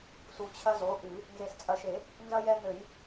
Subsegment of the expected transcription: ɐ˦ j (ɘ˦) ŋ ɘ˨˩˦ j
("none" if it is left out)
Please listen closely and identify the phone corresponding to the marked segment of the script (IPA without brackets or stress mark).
ɛ˦